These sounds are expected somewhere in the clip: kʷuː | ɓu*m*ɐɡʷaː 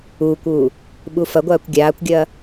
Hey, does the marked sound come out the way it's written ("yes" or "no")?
no